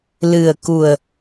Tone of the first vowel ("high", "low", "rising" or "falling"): low